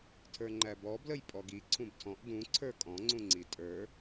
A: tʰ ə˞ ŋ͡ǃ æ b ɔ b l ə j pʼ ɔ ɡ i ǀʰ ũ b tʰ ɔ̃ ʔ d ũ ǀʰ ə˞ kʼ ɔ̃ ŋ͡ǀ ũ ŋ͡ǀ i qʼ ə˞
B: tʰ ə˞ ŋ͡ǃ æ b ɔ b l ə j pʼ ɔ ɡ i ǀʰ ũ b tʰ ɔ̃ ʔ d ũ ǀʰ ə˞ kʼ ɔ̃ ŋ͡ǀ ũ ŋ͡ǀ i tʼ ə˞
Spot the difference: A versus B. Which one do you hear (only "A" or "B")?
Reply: B